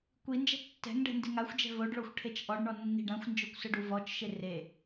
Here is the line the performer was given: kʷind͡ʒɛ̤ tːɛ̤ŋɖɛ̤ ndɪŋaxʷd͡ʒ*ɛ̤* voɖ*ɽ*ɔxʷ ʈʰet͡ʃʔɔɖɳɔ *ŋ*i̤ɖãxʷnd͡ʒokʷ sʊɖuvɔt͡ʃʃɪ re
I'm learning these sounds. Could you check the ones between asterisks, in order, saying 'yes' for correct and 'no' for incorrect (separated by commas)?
yes, no, no